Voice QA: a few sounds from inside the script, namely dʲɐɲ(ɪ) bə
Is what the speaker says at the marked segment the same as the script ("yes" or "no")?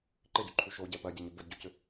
yes